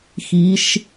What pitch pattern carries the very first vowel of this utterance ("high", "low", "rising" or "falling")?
rising